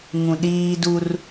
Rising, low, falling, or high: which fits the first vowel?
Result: low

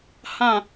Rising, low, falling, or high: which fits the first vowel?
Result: falling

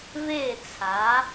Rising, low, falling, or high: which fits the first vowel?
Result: falling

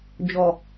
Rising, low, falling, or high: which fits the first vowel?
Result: low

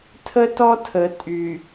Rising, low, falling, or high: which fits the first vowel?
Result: high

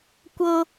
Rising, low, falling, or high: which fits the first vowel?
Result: high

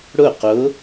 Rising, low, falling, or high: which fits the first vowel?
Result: falling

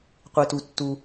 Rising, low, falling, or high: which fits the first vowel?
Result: low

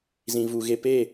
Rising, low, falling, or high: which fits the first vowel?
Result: low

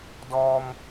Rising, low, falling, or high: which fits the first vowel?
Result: low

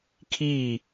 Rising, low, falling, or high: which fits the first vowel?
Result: falling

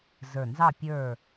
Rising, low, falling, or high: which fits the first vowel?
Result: low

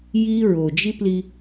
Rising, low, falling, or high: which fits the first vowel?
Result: high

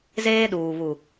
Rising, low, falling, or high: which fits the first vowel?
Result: high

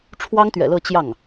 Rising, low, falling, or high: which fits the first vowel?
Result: high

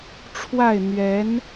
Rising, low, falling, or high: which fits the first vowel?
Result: falling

